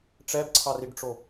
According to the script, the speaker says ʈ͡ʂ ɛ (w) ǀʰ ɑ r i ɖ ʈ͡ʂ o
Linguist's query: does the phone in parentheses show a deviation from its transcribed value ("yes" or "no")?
yes